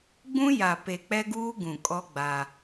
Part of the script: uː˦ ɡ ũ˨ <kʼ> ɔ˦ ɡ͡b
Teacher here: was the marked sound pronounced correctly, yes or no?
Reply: yes